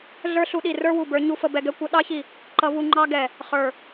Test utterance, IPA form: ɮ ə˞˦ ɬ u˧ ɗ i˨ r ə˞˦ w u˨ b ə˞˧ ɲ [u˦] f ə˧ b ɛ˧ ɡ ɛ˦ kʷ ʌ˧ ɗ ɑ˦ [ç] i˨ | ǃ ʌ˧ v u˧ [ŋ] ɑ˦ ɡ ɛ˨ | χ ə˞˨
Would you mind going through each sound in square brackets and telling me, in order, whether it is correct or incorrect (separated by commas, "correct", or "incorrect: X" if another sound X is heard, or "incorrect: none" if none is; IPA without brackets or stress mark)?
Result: correct, correct, incorrect: ŋ͡ǃ